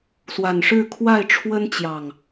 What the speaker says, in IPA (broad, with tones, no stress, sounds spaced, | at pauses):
s w a˨˩ n ʂ ɻ̩˥˨ kʰ w a˥˨ ɪ̯ ʈ͡ʂʰ w ə˦ n t͡ɕ j ɑ˨˩ ŋ